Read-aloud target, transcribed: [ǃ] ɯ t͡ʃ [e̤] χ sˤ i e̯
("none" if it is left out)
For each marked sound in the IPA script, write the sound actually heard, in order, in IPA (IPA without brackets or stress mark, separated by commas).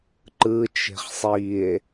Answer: ǃ, e̤